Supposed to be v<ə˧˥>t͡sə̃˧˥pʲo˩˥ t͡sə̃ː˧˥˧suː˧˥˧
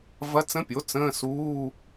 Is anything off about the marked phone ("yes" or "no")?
yes